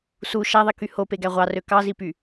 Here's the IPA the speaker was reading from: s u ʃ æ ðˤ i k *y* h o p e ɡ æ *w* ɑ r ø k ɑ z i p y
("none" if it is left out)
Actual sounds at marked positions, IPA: y, ʁʷ

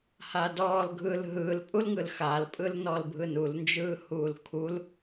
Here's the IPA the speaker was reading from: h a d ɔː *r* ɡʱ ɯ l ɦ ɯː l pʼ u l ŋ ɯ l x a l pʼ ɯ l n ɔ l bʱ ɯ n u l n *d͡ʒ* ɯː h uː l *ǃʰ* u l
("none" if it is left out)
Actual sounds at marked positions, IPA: l, d͡ʒ, kʰ

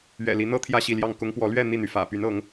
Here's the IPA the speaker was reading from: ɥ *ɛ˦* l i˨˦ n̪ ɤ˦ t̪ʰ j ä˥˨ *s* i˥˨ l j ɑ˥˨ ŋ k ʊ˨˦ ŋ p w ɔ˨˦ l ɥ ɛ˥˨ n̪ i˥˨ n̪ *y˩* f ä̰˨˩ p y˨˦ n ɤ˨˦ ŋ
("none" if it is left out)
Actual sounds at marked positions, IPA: ɛ̰˨˩, ɕ, y˩

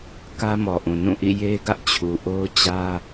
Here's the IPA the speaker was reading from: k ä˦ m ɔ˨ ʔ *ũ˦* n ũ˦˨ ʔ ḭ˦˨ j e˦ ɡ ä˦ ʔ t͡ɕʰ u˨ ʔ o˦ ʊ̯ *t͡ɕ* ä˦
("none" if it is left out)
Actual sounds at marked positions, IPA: ũ˨, t͡ɕ

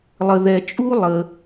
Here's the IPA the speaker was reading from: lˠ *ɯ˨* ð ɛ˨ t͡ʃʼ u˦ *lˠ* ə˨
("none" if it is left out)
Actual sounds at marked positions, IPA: ə˨, lˠ

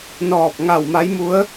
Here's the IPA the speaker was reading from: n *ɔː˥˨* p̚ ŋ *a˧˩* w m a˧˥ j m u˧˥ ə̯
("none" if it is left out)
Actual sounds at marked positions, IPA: ɔː˧˩, a˧˩

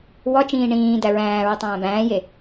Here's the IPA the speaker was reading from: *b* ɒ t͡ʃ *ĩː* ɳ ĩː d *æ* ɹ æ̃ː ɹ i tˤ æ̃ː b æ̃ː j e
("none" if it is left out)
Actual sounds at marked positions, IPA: w, ĩː, æ

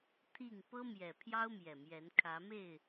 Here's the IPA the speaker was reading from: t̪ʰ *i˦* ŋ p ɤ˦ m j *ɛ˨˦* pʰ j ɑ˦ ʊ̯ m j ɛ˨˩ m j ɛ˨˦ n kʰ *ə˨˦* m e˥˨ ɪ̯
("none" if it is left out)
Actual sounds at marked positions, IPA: i˥˨, ɛ˨˩, ä˨˦

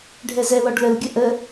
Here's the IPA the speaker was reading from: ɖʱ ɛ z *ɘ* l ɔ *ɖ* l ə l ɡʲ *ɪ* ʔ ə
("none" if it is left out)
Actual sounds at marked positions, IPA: ɛ, ɖ, ə

